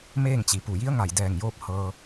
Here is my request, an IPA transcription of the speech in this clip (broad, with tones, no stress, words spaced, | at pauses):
meː˥˨ŋt͡ɕi˩pu˧˩ ji˧˥ə̯ŋa˧˩jdɛː˧˩ŋjoː˧p̚ hɤː˧